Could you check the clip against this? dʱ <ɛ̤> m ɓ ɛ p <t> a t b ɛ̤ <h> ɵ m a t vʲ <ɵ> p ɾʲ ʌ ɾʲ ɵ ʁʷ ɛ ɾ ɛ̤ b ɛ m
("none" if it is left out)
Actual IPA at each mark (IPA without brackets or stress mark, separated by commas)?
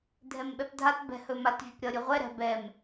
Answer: ɛ, dʱ, h, ɵ